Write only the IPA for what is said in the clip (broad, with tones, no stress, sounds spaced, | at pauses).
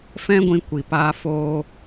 f ɛ̃˦ ɡʷ ĩ˧ kʷ i˨ p aː˧ f oː˧